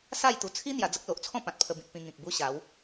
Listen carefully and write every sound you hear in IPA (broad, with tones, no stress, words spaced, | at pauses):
sa˥˧jt̪u˨˩ t͡sʰi˦ n̪ja˧d͡zə˦k̚ lo˨ʔt͡sʰɔ̃˥˧ pã˨t̚pʰə˧bĩ˨t̚ pĩ˧ŋĩ˨k̚bu˦ɕa˨˦w